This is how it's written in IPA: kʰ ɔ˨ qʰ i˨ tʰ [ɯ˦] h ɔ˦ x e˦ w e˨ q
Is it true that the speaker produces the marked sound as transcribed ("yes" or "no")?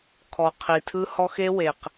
yes